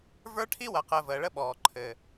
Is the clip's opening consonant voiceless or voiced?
voiced